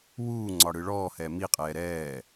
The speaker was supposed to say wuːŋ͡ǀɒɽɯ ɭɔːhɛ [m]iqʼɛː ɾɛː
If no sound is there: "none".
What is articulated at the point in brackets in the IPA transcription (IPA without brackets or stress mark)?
m